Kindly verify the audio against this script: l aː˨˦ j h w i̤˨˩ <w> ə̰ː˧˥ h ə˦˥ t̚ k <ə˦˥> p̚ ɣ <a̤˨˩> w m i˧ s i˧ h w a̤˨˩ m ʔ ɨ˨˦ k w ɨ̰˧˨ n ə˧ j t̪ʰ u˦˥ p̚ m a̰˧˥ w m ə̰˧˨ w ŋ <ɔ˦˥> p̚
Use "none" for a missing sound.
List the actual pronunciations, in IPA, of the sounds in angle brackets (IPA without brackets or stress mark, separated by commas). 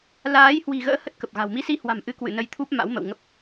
ɣ, ə˨˩, a̤˨˩, ə˦˥